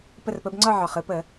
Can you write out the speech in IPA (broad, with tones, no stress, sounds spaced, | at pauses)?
p ə˦˨ r p ə˨˦ b ŋ͡ǀ ɒ˦˨ ʕ ɒ˩ χ ɯ˦˨ p ə˧˩˧